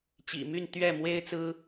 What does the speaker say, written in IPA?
t͡ɕḭ˨˩my˥˨n t̪ɥɛ˥˨ mwe˦ɪ̯ t͡sɹ̩˦

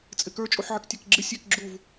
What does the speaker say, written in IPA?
t͡sʼɪkə˞ t͡ʃʼuħʕɪktʲækɡ͡ǁɪ sʲek ɡ͡ǁuv

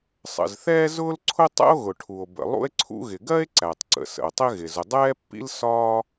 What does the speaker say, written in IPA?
sˤə̰˩zθɛː˥zʊː˥lǀʰʊ˥ tˤɛ̰˥o̯ɣʊ˩ʈʰu˩o̯ bə̰˩ lˠṵ˥e̯ǀʰṵ˥ɣɪ˩ ɡɜ˥e̯ǀæ˩tˤǀə̰˩ sə̰˩o̯tˤɪ˥ɣɪ˩ zʊ˩dˤɛː˥pːḭ˥l sɒː˥

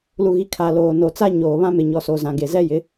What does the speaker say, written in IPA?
lu˨ɣi˨ kʰa˨loː˨ no˨t͡sa˦ɲoː˨ βã˦mɪ˨ɲɔ˨so˨ zã˨ɡe˨ zɛ˦jɪ˨˦

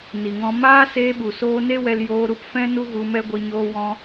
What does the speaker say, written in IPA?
ni˨ŋɔ̃˧ maː˦seː˧ɓu˨soː˧ ne˦wɛ˧l joː˧ɾu˧pfɛ̃˦ nu˦ɣu˧mɛ˦ɡʷi˧ ɲoː˧wɔ̃˧

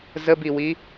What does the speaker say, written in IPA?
zəbiwi

